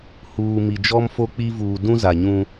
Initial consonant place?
glottal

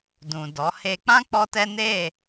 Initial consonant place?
alveolar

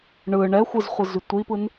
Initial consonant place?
retroflex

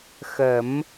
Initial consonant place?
velar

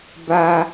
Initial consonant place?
labial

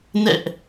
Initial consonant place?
alveolar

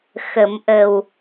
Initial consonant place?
velar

